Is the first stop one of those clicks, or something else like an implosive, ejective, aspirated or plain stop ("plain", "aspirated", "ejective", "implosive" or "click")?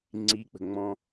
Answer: click